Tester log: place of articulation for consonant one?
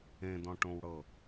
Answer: alveolar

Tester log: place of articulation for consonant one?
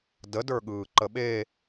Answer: alveolar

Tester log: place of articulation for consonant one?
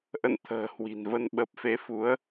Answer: glottal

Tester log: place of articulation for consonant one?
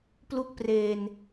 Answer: labial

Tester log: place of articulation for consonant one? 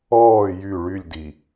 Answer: palatal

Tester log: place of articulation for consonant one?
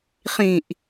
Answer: uvular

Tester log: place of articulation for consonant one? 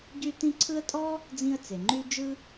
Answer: palatal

